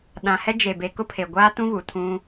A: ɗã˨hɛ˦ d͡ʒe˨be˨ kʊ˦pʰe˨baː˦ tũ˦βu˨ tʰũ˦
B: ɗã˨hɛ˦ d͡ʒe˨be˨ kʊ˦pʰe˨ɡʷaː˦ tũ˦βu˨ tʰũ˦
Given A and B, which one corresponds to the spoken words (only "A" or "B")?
B